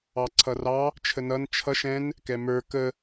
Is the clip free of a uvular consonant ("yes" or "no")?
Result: yes